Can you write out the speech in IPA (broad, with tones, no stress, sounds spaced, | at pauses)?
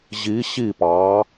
ʑ i˩˧ ɕ i˧˩ p ɑ˩˧